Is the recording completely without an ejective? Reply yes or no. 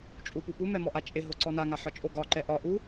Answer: no